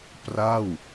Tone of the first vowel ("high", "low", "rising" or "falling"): falling